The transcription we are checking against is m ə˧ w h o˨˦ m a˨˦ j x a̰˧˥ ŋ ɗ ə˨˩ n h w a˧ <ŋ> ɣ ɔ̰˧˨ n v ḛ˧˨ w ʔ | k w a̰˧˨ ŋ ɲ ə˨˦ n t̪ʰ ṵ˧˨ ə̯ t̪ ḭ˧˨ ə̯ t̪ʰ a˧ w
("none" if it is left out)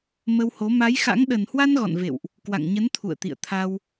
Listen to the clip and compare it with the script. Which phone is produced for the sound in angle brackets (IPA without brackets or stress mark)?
n